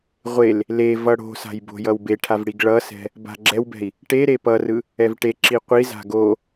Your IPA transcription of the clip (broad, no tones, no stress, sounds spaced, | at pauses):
ʁʷ e l | l e v ʌ ɽ o̤ s a̤ j b o̤ j ʌ w b e ʈʰ a v ɽ i ɡ ɭ ʌ s ɛ̤ | b a̤ ɡ͡ǁ ɛ w b ɛ̤ i̯ | ʈ e ɾ e p ʌ r ɯ | ɛ v ʈ e ǁ i qʷ i z a̤ ɡ o